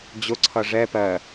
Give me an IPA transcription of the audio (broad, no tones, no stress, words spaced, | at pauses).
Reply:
d͡ʑʊǀʰʌ ʐɛ pɜ